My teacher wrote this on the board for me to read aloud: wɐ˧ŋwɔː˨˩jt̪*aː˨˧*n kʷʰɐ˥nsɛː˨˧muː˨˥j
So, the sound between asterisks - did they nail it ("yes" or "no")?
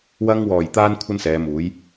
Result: no